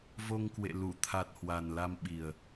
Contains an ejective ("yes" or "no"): no